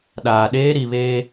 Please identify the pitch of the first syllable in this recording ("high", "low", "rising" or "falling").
low